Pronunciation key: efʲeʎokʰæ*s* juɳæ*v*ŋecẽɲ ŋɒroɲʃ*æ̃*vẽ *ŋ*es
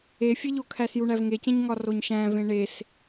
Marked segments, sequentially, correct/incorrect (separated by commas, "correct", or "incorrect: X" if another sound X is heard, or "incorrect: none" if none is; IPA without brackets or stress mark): correct, correct, correct, incorrect: ɳ